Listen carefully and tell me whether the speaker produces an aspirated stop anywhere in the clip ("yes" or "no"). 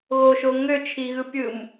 yes